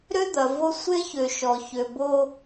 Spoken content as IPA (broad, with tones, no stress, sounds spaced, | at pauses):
ɾ ø˦ d̪ ɐ˨ v o˦ sʷ e˦ ç ø˨ ʃ ɔ˨ ç ø˨ b o˦